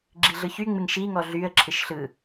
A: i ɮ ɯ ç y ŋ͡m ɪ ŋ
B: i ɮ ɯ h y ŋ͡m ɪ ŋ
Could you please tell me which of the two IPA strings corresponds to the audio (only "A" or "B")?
A